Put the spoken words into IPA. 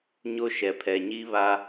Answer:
ɲ o˦ ʃ ɛ˨ pʰ ɛ˨ ɲ i˦ β a˦

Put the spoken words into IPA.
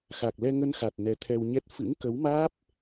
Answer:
x a˨˩ k̚ l ɛ˧ ŋ ə˧ n x a˨˩ t̚ n ɛ˨˦ t̪ʰ ɛ˧ w ɲ ɛ˦˥ t̚ f ɨ̰˧˥ ŋ k ə˨˦ w m aː˦˥ p̚

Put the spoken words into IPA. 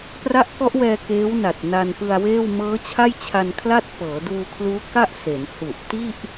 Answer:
p r a˦˥ ʔ k ɔ˦˥ ʔ w ɛː˧ k eː˦˥ w n a˨˩ t̚ n a˧ n p ɯ˧ a̯ w eː˥˩ w m ɤː˦˥ t͡ɕʰ a˥˩ j t͡ɕʰ a˧ n kʰ l a˥˩ t̚ p ɤː˩˦ d uː˧ kʰ l uː˦˥ k a˥˩ ʔ s e˩˦ n h u˨˩ ʔ t i˥˩ ʔ

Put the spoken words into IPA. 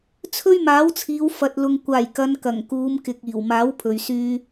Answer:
t͡sʰ ɵ˥ ɥ m aː˨˥ w t͡sʰ iː˨˧ w f ɐ˨ t̚ l ʊ˨ ŋ kʷ aː˨˩ j k ɐ˨˧ n k ɐ˨˩ ŋ k uː˨˧ m k ɪ˨ k̚ iː˨˩ w m aː˨˥ w pʰ ɵ˨ ɥ s yː˥

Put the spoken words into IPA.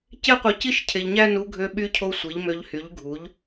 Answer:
c e˥ qʷ ɯ˧ c i˥ ʃ cʰ e˧ ʎ ɲ æ˥ n u˧˥ ɡʱ ø˧ ɓ y˧˥ cʰ o˧ sʷ i˩˥ ʎ m ø˧˥ ʎ h y˩˥ ʎ ɡʱ u˩˥ ʎ

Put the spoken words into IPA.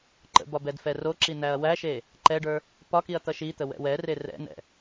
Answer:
ǃ ə̰ b ɒ b ɛ d f ɛ r o ǁ i n æ ɐ̯ w æ ʃ e | ǃ ɛ ɖ ə˞ | p ɒ k i ɐ̯ t̪ ʌ ʃ i t̪ ə w ɛ̰ w ɛ r e r ɛ̰ n ɛ̰

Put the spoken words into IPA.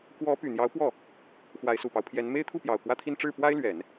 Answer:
k w ɔ˧˥ p y˨˩ n̪ j ɑ˧˥ ʊ̯ p w ɔ˥˩ | x w a˧˥ ɪ̯ s u˨˩ p ɑ˦ ʊ̯ pʰ j ɛ˧˥ n m e˥ ɪ̯ t̪ʰ u˥˩ p j ɑ˨˩ ʊ̯ k w ä˥˧ t̪ʰ i˥˧ n ʈ͡ʂ ɻ̩˥˩ p w a˥ ɪ̯ l ɥ ɛ˨˩˦ n

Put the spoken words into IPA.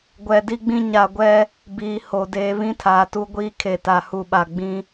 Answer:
ɡʷ ɛ˨ d i˦ ɡ͡b ĩ˦ ɲ a˨ ɡʷ ɛ˦ | b iː˨ h o˨ d eː˨ β ĩ˦ tʰ aː˨ t u˦ ɡʷ iː˦ kʰ e˨ t a˨ h u˨ ɓ a˨ ɡ͡b ĩ˦

